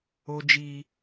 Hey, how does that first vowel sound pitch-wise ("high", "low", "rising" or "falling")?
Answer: high